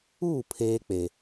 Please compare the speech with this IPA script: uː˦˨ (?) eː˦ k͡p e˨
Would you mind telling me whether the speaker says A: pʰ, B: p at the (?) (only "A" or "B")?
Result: A